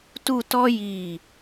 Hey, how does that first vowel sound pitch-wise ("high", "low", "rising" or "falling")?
falling